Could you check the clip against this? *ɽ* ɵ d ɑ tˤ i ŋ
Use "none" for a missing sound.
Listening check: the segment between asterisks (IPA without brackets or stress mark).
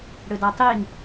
ɽ